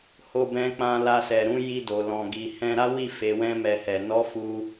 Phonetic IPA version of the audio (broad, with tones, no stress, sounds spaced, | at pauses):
h o˦ b ɛ̃˦ k͡p ã˦ l a˧ s ɛ˨ ɾ ũ˨˦ j i˧ d o˨ l ɔ̃˨ ɡ i˨ h ɛ̃˧ ɾ a˦ w i˦˨ f e˨˦ w ɛ̃˦ m ɛ˧ h ɛ˨ n ɔ˨˦ f u˦